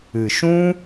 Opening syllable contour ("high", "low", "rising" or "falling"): low